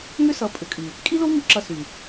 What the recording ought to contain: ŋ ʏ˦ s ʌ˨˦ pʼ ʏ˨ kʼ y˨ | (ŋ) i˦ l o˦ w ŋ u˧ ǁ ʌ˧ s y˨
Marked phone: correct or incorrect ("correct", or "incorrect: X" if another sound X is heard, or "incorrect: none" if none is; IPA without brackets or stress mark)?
incorrect: kʼ